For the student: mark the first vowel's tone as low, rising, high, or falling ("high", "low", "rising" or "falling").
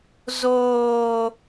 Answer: low